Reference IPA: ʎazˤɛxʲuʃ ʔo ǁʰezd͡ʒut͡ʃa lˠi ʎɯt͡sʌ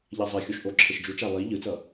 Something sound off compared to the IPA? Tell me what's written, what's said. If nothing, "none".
z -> ʃ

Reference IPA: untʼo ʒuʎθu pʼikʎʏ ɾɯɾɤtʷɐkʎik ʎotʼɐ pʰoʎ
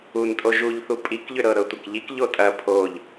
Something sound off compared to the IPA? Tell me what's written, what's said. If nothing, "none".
ɯ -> ɤ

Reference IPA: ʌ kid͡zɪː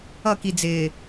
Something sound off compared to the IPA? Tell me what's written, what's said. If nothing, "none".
none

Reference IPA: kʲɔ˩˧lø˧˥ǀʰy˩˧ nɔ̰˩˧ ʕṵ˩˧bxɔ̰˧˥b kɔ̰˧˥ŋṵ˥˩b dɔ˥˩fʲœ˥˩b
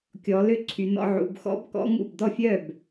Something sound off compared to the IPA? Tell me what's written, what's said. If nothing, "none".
none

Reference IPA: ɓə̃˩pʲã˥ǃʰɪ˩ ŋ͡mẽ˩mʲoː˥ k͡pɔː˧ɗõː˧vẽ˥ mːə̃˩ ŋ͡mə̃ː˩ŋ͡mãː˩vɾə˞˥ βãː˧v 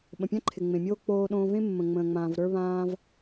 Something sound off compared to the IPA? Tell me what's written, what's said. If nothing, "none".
ɔː˧ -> oː˧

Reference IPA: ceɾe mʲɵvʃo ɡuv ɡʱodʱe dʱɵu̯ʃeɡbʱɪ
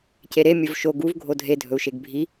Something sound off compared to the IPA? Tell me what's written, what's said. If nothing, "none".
ɪ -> i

